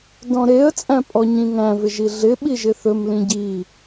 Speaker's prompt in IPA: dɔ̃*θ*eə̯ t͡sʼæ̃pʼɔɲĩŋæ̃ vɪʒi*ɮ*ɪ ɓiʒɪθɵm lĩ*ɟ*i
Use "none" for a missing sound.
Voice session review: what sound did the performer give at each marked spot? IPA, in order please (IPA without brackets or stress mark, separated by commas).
ɾ, ɮ, ɟ